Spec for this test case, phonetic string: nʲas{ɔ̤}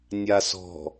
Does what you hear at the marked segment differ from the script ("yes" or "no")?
no